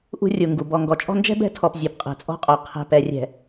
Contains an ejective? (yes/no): yes